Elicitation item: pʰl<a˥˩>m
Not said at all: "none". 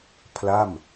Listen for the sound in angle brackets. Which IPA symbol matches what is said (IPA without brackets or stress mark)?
a˥˩